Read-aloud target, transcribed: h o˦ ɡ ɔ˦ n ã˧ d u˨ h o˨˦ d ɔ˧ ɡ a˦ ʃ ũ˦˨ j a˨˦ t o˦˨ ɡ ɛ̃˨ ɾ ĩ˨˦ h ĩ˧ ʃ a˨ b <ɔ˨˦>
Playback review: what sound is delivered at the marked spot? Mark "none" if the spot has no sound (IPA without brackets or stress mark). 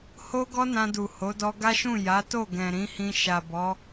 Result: ɔ˨˦